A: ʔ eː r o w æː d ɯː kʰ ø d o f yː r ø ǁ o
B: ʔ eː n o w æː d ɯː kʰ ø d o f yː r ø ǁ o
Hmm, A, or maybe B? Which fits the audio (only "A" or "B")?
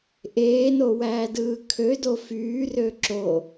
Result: B